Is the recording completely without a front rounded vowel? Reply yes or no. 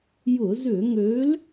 no